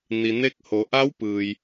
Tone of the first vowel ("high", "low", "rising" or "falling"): low